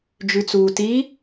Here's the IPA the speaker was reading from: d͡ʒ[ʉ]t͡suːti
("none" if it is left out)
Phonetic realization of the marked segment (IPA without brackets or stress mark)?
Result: ʉ